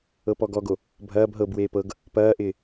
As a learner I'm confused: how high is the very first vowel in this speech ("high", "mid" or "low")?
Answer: mid